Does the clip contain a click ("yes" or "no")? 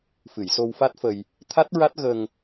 no